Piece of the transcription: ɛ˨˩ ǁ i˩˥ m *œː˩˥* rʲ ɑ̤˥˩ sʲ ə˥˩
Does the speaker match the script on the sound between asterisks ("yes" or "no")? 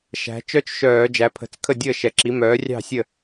yes